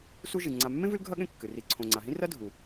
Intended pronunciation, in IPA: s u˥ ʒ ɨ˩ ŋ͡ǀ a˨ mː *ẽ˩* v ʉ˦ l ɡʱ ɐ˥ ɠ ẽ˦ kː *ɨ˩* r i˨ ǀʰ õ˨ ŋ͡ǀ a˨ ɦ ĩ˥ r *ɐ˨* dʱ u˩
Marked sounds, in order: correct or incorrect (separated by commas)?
incorrect, correct, incorrect